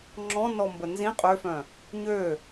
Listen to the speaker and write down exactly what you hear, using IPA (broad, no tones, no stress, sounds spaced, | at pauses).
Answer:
ŋ͡ǁ ɔ̃ n ɔ m b ə n z ĩ qʼ ø f œ̃ | ɲ ø